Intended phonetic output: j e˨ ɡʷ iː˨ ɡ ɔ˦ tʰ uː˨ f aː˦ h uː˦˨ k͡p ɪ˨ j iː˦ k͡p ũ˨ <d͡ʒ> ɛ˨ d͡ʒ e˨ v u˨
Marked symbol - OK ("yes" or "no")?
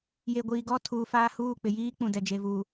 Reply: no